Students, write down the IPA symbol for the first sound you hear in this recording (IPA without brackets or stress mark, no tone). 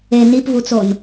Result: e